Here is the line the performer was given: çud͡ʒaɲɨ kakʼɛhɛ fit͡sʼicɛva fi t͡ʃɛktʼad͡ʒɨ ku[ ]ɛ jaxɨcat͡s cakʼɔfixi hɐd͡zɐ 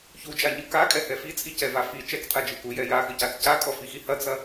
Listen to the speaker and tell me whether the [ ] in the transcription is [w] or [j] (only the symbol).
j